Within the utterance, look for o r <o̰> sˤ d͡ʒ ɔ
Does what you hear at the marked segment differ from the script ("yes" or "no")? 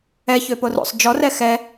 no